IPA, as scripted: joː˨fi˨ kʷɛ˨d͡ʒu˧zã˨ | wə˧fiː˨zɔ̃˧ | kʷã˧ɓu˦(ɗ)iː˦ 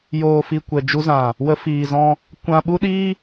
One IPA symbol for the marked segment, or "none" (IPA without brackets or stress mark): ɗ